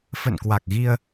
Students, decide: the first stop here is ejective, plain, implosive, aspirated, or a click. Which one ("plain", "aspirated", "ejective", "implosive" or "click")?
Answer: plain